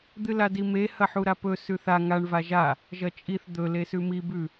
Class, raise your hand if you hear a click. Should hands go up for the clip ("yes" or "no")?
no